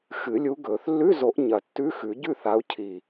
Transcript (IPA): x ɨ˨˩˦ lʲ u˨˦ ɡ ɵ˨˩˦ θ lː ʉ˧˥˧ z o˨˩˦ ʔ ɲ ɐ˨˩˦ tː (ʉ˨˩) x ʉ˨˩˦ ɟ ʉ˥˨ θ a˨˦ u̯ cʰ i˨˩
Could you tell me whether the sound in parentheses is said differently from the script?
yes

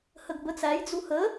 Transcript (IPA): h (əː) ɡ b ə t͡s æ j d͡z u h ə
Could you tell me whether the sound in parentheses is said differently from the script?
yes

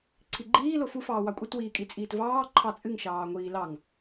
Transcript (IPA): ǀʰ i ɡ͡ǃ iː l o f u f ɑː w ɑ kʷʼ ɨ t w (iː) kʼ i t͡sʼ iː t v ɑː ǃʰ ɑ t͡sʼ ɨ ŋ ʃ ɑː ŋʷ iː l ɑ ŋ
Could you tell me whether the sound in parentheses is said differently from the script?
no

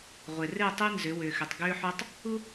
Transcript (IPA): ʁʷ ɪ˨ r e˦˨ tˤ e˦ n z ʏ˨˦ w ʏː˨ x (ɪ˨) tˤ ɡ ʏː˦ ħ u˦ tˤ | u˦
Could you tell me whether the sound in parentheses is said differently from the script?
yes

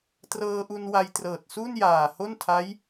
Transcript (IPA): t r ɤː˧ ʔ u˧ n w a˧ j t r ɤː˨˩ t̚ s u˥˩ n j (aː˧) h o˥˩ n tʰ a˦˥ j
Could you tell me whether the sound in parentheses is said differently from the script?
yes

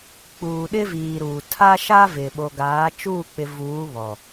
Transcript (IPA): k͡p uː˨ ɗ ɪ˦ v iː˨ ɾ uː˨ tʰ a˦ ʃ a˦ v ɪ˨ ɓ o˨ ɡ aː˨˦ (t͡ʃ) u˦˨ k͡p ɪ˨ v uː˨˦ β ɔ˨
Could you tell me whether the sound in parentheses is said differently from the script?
no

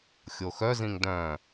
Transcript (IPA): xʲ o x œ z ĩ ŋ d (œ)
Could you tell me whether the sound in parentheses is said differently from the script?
yes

